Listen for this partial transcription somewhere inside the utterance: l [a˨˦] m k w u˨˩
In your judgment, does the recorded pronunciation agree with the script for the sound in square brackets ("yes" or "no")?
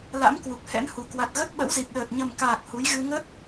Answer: no